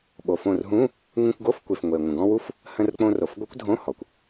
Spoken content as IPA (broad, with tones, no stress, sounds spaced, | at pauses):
ɓ o˩ f õ˧˩ r ɦ ũ˧˥˧ | ŋ ũ˧ kʷ ɡ o˧˥˧ f kʷ e˩ f ŋʷ e˩ ŋʷ ə̃˩ ɡ ɔ̃˧ w u˦˥ f | h ə̃˧ r k͡p õ˧ r o˩ f ɡʷ ɘ˦˥ kʷ dʱ õ˧˥˧ h ɔ˩ kʷ